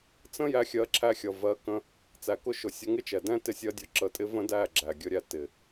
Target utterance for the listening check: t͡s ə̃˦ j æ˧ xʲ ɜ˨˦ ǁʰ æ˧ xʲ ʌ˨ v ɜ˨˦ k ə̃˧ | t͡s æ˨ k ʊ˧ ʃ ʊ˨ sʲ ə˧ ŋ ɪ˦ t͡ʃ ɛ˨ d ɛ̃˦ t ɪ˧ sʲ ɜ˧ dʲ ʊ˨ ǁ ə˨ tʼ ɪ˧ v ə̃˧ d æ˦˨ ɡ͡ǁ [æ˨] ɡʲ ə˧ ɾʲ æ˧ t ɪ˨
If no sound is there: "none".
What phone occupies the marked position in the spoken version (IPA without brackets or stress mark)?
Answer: æ˨